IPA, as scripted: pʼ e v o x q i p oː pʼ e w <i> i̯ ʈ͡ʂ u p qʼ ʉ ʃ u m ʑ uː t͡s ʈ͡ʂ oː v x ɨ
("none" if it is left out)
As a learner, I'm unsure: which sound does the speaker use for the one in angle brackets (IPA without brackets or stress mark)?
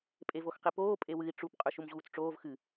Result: ɨ